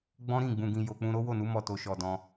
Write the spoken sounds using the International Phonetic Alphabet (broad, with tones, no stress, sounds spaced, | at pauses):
ɡ͡b ɔ̃˦ ɾ ĩ˦˨ ɡ͡b ũ˨ ɡ ĩ˨ j o˨ k͡p ũ˧ ɾ o˦ w o˦˨ n u˨˦ m ɔ˦˨ t o˨ ʃ ɔ˨ d ɔ̃˧